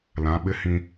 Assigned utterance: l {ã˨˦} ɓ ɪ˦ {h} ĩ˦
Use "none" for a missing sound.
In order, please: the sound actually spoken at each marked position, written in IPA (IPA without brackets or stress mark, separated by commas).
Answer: ã˨˦, h